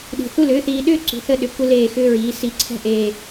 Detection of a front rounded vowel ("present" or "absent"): present